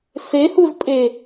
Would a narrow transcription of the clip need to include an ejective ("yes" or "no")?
yes